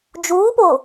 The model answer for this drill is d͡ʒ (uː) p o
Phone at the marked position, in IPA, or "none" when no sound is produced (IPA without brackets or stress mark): uː